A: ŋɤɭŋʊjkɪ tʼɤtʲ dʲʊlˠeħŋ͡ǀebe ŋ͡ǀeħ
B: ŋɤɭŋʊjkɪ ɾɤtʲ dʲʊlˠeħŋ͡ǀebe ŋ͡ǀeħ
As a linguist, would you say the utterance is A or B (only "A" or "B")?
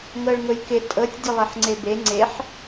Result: A